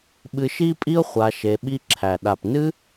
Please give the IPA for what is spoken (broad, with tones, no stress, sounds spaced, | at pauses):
ɓ ɨ˧ ʃ i˦ pʼ i˦ ʊ̯ χʷ a˧ ʃ e˧ ɓ i˦ ǁʰ æ˨ ɗ a˨ p n ɨ˦